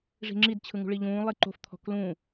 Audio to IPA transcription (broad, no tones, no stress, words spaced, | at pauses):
ʐi̤ŋ͡ǁidt͡ɕʰɯŋṳ ɭiʎũː lˠiǃo̤f t̪ʰɔ̤klũ